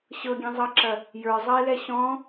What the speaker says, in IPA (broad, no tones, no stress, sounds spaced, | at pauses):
ɕ ɤ ɡʲ ɛ̃ zˤ ɤ ǁ ɐ | j ə˞ zˤ ɐ e̯ l ɛ ɕ ɔ̃